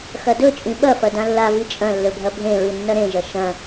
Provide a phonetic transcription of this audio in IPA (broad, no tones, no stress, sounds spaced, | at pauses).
x ɐ d ɵ t͡ʃʼ ĩ ɓ ɐ f ɐ d ã lː a v i t͡ʃʼ ɐ̃ lː ɵ bʱ ɐ bʱ ẽ ɹ ɨ nː ɐ ɾ ẽ ʒ ɐ ʃ ɐ̃